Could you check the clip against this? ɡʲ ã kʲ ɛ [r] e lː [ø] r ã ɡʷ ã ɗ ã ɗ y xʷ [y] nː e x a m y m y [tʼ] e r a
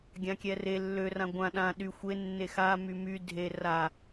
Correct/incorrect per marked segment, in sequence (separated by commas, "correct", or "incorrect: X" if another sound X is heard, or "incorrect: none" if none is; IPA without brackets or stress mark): correct, correct, incorrect: e, incorrect: dʱ